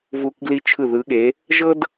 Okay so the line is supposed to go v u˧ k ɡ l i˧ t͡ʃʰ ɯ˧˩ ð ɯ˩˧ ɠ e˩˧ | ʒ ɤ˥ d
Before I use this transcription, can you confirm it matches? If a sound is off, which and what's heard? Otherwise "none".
none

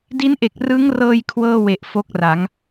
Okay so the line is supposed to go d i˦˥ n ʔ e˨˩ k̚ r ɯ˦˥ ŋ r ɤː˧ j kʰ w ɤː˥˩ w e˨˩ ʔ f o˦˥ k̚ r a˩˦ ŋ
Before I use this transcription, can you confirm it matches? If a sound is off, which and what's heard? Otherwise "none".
none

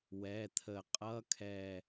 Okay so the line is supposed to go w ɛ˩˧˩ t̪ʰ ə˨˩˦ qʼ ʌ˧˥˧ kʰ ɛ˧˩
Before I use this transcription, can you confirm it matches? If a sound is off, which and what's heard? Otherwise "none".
none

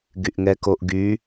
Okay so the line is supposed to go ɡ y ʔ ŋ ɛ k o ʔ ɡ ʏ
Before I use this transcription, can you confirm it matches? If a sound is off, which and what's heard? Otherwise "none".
ʏ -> y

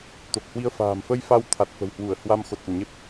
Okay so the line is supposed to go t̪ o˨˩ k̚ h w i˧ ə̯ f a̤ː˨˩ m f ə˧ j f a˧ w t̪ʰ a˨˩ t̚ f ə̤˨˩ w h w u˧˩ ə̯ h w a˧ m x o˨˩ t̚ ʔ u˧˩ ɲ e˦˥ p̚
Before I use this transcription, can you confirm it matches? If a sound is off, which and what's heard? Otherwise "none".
none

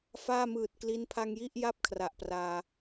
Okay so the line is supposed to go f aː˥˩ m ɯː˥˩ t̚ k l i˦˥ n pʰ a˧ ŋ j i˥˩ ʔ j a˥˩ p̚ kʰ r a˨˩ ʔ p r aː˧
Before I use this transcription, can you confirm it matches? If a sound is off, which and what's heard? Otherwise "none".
ɯː˥˩ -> ɯː˨˩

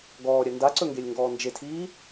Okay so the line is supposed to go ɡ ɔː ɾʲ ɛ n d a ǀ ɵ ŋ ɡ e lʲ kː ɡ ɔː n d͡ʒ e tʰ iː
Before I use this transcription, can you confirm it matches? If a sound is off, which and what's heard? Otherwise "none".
kː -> ŋ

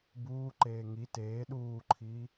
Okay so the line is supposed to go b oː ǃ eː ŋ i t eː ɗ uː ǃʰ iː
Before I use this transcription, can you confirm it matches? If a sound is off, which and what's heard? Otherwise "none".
oː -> uː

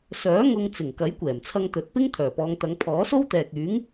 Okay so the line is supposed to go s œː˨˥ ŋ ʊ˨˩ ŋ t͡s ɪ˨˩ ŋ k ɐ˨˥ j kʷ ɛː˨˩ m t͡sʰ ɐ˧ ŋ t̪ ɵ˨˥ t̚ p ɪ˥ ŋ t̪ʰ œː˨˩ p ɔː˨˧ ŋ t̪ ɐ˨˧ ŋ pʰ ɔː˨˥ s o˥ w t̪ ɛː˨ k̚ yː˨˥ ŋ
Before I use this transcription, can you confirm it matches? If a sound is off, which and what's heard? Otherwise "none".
ʊ˨˩ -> ʊ˥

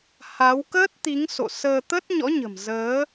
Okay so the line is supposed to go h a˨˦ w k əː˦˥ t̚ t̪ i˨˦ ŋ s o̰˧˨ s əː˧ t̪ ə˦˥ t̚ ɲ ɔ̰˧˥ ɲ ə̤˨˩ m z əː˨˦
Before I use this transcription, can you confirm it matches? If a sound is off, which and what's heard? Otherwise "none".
none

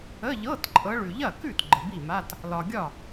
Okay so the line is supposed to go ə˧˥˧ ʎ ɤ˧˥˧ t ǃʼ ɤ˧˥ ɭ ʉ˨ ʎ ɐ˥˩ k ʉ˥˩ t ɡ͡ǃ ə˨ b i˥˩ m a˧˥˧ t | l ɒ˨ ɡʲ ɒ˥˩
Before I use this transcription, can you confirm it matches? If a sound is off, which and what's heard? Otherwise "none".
none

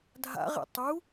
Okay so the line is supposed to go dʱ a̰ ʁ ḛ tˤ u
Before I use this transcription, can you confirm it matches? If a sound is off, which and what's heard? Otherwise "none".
none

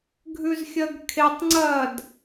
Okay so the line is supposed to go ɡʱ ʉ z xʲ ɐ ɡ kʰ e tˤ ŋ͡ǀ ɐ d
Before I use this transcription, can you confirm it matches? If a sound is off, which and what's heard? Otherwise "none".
none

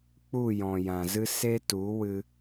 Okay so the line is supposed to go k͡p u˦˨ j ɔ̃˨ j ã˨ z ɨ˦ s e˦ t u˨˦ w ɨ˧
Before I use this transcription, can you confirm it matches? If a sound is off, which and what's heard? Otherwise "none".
none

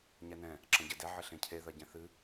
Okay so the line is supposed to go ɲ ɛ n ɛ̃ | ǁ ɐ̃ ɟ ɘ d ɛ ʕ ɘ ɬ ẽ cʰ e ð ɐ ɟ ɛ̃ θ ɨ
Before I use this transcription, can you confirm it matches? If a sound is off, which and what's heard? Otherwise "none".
none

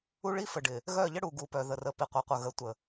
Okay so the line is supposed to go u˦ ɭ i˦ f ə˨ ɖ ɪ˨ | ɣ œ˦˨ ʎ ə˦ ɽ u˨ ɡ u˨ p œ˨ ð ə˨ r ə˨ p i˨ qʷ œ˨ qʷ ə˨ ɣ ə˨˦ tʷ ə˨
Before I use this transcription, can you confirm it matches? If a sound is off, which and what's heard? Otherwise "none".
none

